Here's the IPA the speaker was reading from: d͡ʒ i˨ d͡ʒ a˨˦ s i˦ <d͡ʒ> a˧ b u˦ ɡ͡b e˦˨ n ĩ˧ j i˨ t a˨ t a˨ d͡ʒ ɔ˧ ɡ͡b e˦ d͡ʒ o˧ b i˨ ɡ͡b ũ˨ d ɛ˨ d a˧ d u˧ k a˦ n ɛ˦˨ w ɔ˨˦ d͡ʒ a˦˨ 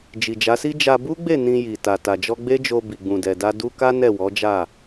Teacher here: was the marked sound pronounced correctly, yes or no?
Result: yes